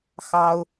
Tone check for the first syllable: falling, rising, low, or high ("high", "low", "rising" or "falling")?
high